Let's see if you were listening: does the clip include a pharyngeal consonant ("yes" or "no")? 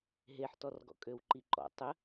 yes